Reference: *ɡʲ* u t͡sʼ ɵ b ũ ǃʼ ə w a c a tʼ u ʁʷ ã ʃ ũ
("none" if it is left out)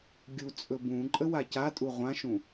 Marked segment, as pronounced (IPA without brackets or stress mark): ɡʲ